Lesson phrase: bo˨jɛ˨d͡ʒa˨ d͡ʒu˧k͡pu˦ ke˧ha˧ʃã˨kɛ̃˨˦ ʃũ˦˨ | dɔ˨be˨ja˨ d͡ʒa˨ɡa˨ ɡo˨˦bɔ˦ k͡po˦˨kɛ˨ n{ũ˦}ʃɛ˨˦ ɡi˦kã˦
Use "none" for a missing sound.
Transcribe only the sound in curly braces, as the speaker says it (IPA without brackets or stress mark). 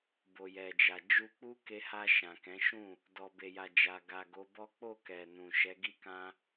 ũ˨